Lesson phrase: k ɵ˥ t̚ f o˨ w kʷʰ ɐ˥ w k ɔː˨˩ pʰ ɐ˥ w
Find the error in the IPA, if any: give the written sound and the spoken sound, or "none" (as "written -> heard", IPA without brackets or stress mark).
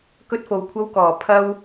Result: none